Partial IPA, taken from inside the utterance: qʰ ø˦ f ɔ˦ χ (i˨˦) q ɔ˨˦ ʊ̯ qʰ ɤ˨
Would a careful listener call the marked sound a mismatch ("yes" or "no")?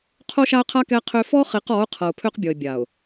no